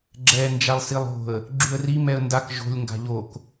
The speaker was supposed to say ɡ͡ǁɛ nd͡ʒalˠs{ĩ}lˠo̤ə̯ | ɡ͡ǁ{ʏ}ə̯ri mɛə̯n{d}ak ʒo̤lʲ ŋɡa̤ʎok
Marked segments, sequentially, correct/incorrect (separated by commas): incorrect, incorrect, correct